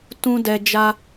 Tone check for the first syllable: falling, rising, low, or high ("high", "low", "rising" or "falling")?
high